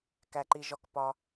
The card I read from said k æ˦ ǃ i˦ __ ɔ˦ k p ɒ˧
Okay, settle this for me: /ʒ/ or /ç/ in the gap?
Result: ʒ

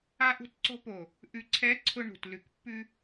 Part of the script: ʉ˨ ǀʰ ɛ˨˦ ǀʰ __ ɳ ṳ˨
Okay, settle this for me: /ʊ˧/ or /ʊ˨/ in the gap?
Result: ʊ˧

